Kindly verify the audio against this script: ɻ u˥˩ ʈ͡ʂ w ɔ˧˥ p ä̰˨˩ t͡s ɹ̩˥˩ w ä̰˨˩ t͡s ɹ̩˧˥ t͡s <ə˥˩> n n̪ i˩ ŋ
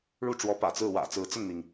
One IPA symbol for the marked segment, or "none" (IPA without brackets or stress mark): ə˥˩